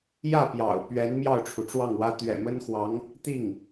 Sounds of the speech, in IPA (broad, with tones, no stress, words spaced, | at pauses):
jä˥˩pjɑ̰˨˩ʊ̯ pɥɛ˧˥n mjɑ˥˩ʊ̯ʈ͡ʂʰu˩ʈ͡ʂwɑ˥˩ŋwä˥ t̪ɥɛ̰˨˩mə˥nxwɑ˧˥ŋ | t̪i˥˩ŋ